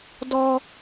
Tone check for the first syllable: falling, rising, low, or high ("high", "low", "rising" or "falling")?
high